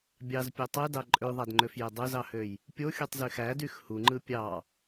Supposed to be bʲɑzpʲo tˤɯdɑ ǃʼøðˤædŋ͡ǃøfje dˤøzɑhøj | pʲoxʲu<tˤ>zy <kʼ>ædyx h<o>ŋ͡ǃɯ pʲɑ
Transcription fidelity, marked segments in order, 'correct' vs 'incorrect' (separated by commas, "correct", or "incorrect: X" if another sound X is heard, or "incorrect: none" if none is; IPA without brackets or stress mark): correct, incorrect: x, incorrect: u